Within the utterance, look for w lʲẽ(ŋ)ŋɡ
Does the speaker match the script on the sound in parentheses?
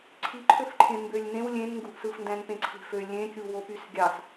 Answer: no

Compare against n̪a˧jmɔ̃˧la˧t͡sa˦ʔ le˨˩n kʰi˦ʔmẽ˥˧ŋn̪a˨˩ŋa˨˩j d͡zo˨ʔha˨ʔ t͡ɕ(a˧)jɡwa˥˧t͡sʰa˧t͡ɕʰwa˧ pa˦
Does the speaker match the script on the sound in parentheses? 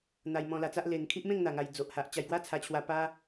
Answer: yes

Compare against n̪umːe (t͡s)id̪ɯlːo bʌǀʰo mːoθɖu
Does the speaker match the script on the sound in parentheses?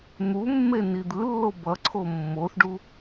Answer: no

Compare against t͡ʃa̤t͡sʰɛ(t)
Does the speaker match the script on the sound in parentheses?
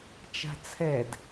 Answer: no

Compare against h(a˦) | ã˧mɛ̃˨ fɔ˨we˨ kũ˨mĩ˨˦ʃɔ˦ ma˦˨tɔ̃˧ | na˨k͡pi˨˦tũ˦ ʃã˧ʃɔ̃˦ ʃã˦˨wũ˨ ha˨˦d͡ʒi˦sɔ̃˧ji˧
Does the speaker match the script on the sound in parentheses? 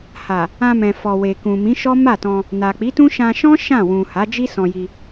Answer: no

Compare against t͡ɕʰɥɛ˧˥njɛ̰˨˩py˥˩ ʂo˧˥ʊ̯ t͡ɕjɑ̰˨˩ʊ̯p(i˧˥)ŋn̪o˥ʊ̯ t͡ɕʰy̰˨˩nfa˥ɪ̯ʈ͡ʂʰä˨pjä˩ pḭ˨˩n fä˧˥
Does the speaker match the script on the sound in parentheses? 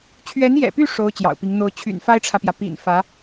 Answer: yes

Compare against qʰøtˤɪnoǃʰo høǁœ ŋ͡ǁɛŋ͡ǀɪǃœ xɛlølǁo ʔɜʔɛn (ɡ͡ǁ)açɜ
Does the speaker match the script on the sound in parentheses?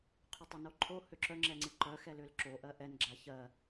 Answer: yes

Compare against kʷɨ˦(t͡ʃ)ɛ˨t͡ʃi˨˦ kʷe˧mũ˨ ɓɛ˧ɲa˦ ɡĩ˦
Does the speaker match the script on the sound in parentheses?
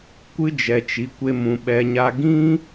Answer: no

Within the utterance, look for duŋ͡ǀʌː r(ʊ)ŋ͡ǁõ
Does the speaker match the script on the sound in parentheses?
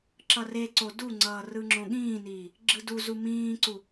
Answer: no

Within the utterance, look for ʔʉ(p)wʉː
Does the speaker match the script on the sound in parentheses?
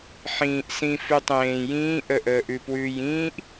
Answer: yes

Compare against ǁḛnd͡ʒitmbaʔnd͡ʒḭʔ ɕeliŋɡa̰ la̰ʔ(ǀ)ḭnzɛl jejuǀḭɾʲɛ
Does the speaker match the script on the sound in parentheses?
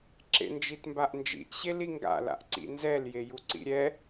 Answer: yes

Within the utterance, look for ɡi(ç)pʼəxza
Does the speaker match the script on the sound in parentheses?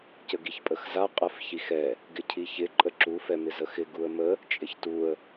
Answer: yes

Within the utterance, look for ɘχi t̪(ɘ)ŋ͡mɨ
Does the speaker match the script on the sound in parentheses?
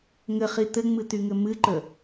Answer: yes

